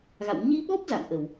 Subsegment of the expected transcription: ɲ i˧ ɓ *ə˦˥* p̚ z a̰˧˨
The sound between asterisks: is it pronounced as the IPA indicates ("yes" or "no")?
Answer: no